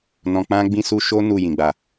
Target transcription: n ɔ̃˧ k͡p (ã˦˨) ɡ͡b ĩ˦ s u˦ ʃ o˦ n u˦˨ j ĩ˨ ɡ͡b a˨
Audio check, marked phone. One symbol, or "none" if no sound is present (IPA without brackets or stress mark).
ã˦